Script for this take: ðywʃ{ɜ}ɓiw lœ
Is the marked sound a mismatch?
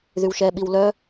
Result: yes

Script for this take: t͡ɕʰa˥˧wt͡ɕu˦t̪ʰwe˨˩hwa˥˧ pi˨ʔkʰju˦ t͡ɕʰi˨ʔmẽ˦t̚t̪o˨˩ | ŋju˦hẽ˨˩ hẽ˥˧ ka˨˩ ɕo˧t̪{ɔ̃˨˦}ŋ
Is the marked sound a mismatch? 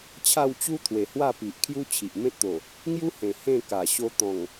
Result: yes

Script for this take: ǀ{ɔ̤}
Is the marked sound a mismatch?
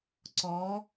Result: yes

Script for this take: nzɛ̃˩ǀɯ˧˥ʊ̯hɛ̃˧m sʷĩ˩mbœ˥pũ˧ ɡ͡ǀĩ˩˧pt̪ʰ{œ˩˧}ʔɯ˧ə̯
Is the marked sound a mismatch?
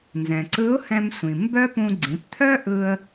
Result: yes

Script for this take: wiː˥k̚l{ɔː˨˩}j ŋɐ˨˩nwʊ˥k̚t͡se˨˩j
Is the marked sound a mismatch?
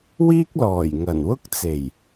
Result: no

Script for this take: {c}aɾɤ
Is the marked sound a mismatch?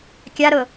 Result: yes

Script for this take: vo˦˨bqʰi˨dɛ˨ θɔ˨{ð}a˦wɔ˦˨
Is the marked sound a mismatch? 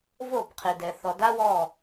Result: yes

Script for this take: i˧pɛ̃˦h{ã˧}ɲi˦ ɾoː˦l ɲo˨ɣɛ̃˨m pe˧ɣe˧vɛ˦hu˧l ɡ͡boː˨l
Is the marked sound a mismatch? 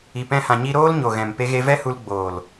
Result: no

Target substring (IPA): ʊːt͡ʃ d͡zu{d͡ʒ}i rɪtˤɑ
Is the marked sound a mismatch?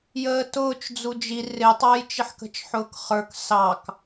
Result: no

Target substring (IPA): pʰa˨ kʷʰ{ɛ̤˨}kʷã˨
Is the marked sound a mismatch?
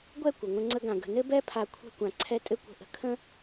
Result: yes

